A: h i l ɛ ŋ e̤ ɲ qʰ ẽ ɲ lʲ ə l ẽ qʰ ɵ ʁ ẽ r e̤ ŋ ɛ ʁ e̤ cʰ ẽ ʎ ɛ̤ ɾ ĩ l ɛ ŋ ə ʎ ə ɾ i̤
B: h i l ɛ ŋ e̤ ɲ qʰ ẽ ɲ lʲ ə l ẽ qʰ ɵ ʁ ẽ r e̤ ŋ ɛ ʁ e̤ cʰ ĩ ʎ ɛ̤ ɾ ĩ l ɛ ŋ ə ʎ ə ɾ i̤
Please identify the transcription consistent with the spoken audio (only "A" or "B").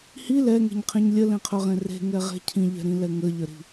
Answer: B